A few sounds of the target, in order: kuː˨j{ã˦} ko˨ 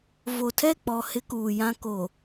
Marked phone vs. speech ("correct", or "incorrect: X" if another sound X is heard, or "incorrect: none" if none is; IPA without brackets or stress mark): correct